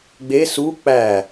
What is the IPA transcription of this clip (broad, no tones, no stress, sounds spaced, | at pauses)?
ɡ͡b e s u k͡p æ